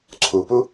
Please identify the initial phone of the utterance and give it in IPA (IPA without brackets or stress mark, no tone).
ǀʰ